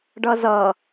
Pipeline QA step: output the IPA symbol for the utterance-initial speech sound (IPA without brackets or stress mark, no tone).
ɖ